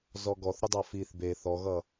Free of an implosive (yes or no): yes